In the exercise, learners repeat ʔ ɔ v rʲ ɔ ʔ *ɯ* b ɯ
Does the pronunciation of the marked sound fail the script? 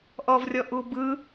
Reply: yes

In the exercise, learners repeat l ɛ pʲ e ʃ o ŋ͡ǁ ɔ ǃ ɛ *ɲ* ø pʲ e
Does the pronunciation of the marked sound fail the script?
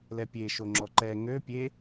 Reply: yes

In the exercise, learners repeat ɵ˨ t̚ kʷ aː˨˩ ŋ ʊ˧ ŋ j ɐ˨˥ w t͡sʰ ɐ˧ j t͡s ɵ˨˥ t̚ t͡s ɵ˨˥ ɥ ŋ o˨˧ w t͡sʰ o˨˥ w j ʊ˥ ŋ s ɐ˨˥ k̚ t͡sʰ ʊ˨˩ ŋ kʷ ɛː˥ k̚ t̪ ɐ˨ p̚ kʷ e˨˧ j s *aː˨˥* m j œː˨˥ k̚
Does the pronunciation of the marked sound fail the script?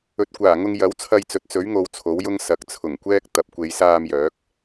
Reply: yes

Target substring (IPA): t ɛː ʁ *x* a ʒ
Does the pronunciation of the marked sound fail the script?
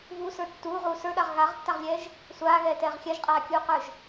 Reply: yes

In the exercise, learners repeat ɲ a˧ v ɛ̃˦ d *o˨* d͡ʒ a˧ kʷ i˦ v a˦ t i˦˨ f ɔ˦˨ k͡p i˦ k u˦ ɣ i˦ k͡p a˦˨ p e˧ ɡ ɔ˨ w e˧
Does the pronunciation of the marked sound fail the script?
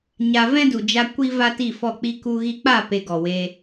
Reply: yes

